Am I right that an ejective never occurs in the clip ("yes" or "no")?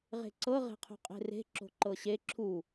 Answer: no